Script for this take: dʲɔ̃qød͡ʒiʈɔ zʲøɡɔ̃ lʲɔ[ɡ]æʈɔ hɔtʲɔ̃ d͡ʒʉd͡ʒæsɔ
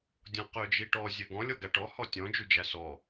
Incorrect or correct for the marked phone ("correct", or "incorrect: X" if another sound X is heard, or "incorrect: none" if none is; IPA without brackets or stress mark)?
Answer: correct